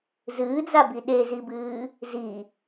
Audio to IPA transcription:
z ɨː d͡z a b i ɗ e z i b ɨː | z i

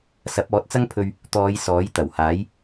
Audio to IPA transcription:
s ɐ˨˥ p̚ ɔː˨˥ t̚ t͡s ɐ˥ ŋ pʰ ɵ˧ ɥ | t̪ ɔː˨˧ j s ɔː˨˥ j t̪ ɐ˨˩ w h aː˨˥ j

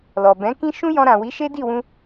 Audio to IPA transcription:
l ɔ˨ b ɛ̃˨˦ k ĩ˦ ʃ ũ˦ j ɔ̃˧ ɾ ã˨ w i˨˦ ʃ e˦ d i˦˨ w ũ˧

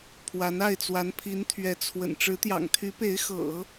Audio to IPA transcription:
pʰ w a˧˥ n a˥˩ ɪ̯ t͡s w a˧˥ n pʰ i˧˥ n t̪ʰ ɥ ɛ˧˥ t͡sʰ w ə̰˨˩ n ʈ͡ʂ ɻ̩˧˥ t̪ j ɑ̰˨˩ ŋ t̪ʰ y˧˥ p e˧˥ ɪ̯ x ɤ̰˨˩˦

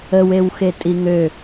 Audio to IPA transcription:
ə w e w x e tʼ i ŋ ø

